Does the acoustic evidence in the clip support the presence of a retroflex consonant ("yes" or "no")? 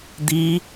no